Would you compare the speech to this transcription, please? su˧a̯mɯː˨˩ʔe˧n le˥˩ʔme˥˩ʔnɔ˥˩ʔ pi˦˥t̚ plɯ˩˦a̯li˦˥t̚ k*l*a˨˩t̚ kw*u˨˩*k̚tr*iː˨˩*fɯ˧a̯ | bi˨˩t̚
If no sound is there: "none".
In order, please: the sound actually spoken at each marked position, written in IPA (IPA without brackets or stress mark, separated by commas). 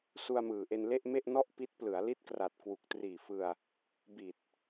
r, u˨˩, iː˨˩